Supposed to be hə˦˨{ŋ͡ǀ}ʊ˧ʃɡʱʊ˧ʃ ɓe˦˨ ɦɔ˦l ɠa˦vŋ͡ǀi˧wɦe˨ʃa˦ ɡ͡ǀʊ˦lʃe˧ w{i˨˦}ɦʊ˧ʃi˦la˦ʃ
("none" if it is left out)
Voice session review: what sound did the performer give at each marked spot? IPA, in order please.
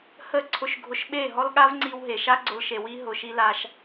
ǀʰ, i˦

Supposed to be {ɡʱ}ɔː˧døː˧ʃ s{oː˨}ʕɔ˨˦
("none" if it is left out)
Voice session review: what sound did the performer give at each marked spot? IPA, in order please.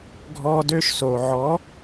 ɡʱ, oː˨

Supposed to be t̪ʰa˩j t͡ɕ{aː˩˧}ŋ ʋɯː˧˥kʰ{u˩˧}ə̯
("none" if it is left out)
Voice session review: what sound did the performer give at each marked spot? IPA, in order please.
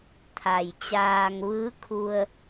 aː˧, u˧

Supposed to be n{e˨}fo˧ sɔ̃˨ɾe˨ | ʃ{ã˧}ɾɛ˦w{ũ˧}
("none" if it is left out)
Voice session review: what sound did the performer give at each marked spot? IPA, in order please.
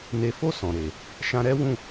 e˨, ã˧, ũ˦˨

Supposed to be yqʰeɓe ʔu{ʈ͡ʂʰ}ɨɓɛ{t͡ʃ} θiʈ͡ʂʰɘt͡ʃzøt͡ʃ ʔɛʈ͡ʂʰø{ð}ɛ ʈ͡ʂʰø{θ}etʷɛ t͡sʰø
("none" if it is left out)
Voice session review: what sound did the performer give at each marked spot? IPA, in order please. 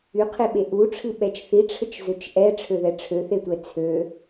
ʈ͡ʂʰ, t͡ʃ, ð, θ

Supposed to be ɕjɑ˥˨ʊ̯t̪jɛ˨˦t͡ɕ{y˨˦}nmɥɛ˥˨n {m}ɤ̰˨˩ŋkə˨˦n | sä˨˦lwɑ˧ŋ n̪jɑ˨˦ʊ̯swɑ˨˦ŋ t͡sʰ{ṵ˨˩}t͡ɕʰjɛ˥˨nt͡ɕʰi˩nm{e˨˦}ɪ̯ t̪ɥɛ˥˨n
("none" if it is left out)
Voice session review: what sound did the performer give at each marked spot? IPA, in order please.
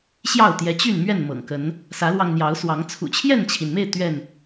y˥˨, m, ṵ˨˩, e˥˨

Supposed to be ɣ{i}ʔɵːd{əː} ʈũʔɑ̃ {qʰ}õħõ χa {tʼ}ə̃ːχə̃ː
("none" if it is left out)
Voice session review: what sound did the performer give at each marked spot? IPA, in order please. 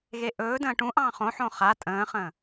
e, ə̃ː, χ, tʼ

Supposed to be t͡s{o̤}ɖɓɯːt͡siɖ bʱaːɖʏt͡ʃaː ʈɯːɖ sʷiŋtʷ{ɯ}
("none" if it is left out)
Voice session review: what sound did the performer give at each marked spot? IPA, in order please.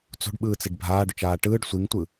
o̤, ɯ

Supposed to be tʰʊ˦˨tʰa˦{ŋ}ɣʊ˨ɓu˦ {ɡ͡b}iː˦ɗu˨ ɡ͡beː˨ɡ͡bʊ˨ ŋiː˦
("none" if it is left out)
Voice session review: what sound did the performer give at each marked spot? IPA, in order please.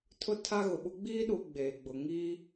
none, ɡ͡b

